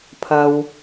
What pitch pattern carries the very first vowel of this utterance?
low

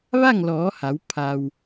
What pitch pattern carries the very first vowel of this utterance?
falling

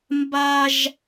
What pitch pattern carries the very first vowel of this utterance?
high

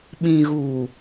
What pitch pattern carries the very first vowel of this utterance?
low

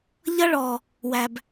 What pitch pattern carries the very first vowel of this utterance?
high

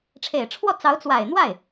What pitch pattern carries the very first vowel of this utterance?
low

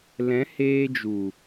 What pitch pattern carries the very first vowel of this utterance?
rising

